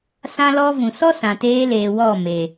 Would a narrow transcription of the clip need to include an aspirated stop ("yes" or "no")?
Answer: no